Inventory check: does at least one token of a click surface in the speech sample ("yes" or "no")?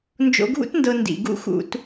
no